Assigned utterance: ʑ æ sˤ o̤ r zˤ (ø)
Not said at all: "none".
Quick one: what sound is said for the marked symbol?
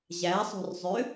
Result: ø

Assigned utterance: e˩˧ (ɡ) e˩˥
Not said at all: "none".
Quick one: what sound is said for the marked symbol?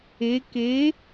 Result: k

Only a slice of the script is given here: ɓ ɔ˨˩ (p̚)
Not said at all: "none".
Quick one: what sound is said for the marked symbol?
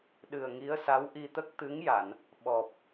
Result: p̚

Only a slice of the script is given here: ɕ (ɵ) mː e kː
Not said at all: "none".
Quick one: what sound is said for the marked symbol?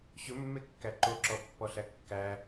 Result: ɵ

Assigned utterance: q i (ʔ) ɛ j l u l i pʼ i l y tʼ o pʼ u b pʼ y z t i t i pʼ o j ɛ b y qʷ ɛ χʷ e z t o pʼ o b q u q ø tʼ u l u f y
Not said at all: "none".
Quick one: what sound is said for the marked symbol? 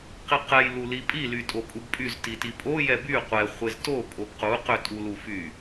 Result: q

